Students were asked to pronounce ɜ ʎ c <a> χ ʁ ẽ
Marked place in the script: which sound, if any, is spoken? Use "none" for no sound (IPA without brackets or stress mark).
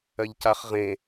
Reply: a